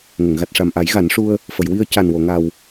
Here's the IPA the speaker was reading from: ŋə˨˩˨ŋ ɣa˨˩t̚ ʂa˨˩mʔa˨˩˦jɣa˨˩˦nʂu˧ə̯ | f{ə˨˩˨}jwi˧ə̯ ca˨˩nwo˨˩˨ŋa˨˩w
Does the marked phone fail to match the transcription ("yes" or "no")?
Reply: no